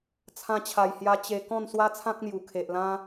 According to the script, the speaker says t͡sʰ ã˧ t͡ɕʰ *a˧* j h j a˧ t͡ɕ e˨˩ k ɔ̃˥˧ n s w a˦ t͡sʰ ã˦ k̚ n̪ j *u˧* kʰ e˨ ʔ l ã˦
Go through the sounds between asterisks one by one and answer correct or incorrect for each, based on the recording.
incorrect, incorrect

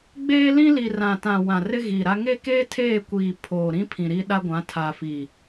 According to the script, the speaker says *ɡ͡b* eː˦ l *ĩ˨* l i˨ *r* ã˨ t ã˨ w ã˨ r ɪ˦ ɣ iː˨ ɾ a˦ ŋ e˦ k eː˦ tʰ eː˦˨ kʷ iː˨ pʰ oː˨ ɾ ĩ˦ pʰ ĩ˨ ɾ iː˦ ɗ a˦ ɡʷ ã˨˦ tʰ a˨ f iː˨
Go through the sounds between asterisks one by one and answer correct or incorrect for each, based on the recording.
correct, incorrect, correct

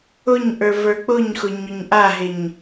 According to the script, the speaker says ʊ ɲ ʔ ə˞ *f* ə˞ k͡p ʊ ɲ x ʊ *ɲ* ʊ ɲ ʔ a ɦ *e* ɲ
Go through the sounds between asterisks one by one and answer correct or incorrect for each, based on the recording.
incorrect, correct, correct

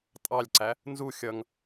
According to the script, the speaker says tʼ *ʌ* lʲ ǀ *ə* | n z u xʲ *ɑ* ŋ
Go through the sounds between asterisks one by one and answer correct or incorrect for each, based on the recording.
incorrect, incorrect, incorrect

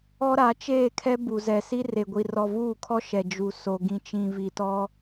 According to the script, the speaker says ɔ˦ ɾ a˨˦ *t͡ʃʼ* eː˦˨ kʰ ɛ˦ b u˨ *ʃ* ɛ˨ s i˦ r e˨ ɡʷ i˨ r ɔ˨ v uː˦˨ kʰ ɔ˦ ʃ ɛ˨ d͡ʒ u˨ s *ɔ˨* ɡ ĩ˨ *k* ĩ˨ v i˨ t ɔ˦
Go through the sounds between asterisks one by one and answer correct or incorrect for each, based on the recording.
incorrect, incorrect, incorrect, incorrect

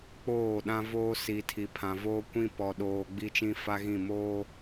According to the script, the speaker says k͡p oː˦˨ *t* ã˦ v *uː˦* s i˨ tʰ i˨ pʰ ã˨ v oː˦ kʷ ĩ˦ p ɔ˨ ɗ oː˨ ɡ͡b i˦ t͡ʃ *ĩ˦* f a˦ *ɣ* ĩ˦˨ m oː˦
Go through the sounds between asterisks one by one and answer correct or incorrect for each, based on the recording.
incorrect, incorrect, correct, correct

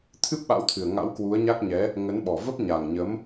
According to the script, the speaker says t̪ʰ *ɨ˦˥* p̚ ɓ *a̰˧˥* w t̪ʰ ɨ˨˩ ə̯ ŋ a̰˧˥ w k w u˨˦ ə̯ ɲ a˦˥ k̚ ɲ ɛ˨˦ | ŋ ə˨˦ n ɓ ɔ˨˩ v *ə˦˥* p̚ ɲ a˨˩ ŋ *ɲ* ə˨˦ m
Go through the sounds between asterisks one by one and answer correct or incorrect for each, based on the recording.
correct, correct, correct, correct

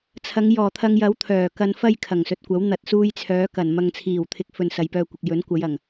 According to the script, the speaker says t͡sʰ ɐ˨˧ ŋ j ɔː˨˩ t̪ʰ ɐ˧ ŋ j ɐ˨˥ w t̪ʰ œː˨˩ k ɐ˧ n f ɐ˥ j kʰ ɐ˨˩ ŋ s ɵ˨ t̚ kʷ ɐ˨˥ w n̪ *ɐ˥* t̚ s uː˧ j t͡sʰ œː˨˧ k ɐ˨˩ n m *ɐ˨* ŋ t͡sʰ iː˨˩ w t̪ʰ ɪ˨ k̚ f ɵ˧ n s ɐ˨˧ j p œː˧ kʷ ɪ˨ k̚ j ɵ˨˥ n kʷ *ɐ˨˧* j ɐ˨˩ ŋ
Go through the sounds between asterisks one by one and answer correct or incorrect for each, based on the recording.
incorrect, correct, correct

